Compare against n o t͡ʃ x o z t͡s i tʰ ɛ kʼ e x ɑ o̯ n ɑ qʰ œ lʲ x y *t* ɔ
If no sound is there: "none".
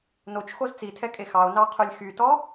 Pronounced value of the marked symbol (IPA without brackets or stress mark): t